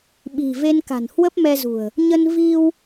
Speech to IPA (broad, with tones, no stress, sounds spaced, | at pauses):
ɓ i̤˨˩ v e˧ n k a̤˨˩ n h w ə˦˥ p̚ m ɛ˧ z ṳ˨˩ ə̯ | ɲ ə˧ n v i˧ w